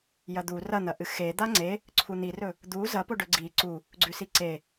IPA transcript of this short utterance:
j ɐ d̪ u r ɐ n̪ ɐ ʔ ɨ x e d̪ a ŋ͡ǀ e | ǀʰ u n̪ i r ɵ | d̪ u z ɐ p o ɖ ɵ ɡ͡ǀ i ǀ u | ɡ͡ǀ ʉ s i ǀ e

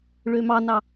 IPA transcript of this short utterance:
ɭ ø m ɑ n ɑ

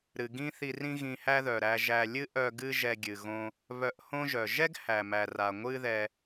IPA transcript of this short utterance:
ɾ ɨ˩ ɡ ĩ˥ θ i˧ r ĩ˥ ɣ ĩ˧ h æ˥ ð œ˩ ɾ æ˧ ʒ æ˧ lʲ ɨ˥ ʔ œ˧ ɡ ɨ˥ ʒ ɛ˧ ɡʲ ɨ˩ ɣ õ˧ | β œ˧ ʔ h õ˥ ʒ œ˩ ʒ ɛ˥ ɡ h æ˩ m æ˩ r a˩ ŋʷ ɨ˥ ð ɛ˧

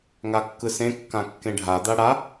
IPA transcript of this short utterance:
ŋ a kː ɯ s ẽ kː ã kː ẽ ɖʱ a d̪ a ɽ a

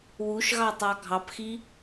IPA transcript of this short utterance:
w u ʃ ɣ ɑ tˤ ɑ ɡʱ ɑ p x i

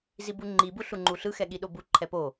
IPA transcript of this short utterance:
z i b u ŋ͡ǃ i b u ɬ u ŋ͡ǃ u ɬ ɯ x ɛ ɠ i ɗ o b u ǃʰ ɛ p o

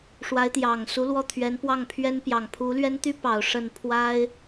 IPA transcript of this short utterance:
ʂ w a˧˥ ɪ̯ t̪ j ɑ˨˩ ŋ s u˧˥ l w ɔ˥˩ t̪ʰ ɥ ɛ˧˥ n p w ɑ˥˩ ŋ pʰ ɥ ɛ˥ n p j ɑ˨˩ ŋ pʰ u˧˥ l ɥ ɛ˥ n t̪ y˥ p ɑ˨˩ ʊ̯ ʂ ə˥˩ n pʰ w a˥ ɪ̯

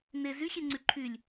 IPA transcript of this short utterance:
n e z y xʲ e ŋ͡ǀ y ǃʰ y lʲ

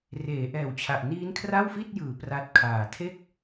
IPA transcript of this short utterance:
r eː˩˦ ʔ ɛː˨˩ w t͡ɕʰ a˨˩ ʔ n iː˦˥ n kʰ r a˥˩ w f i˥˩ t̚ j ɯː˩˦ p r a˦˥ t̚ kʰ aː˨˩ tʰ e˥˩ k̚

